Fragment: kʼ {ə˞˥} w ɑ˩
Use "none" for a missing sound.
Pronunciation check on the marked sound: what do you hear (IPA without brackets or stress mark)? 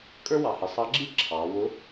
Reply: ə˞˥